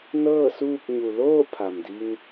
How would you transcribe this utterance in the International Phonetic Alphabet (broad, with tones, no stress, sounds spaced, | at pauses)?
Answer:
n ɤː˥˨ s uː˥˨ k̚ ɲ u˩ l oː˥˨ pʰ a˩ m d i˧ ŋ